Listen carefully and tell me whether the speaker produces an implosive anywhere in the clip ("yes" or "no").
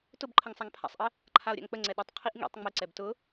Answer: yes